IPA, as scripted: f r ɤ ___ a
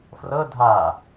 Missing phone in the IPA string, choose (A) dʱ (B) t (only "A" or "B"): A